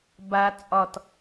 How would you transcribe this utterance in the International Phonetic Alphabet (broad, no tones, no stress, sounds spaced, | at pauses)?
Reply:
b a t͡sʼ ɒ t